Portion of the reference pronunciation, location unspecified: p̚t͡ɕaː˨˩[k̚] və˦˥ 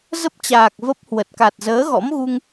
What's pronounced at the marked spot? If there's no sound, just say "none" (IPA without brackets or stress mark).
k̚